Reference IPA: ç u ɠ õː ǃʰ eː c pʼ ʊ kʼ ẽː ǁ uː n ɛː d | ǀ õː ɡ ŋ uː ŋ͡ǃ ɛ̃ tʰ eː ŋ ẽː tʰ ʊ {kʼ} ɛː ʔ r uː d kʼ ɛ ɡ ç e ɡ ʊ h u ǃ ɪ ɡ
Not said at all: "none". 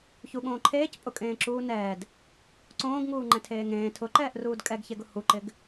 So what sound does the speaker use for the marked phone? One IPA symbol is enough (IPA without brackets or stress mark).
ǃ